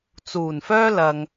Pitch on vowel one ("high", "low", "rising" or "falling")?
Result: low